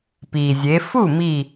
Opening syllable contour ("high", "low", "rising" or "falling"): low